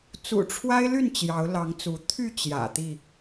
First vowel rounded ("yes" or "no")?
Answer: yes